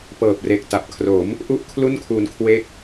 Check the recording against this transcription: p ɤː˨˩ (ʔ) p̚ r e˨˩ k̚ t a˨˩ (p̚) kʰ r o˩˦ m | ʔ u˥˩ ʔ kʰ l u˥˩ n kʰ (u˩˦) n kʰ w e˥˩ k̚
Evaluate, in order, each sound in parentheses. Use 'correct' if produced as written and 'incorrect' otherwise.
incorrect, correct, incorrect

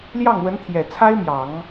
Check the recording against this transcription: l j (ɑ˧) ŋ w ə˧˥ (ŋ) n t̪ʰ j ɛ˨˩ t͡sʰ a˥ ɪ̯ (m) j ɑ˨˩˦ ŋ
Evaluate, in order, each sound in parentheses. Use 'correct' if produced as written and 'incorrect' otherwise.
incorrect, incorrect, correct

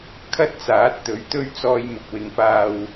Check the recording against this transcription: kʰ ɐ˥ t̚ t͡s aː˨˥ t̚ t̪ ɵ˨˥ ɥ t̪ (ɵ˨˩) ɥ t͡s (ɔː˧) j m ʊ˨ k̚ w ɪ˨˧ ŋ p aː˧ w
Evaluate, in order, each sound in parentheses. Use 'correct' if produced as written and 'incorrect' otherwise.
incorrect, correct

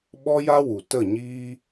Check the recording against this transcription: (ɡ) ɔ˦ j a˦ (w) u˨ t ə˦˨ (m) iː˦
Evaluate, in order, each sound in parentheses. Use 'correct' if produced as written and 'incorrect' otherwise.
incorrect, correct, incorrect

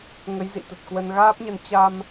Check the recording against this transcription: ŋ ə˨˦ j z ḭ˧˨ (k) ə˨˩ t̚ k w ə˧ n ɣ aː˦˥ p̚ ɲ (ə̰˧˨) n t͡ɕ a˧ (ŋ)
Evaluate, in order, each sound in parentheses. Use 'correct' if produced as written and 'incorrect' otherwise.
incorrect, incorrect, incorrect

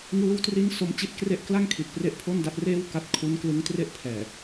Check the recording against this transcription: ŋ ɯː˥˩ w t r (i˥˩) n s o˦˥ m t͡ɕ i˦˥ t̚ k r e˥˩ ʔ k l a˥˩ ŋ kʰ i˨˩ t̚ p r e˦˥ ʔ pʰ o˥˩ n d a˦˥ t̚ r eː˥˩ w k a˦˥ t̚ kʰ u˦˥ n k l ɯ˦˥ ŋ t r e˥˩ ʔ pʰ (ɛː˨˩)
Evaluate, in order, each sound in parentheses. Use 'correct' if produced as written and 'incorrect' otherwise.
correct, correct

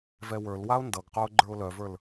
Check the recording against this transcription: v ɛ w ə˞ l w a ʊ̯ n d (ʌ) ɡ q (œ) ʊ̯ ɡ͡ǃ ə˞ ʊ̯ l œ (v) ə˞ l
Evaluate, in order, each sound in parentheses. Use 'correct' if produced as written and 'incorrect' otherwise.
correct, correct, correct

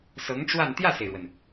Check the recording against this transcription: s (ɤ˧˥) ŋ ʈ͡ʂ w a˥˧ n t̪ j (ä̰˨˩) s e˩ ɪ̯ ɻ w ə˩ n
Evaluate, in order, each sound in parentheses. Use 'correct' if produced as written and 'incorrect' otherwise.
correct, incorrect

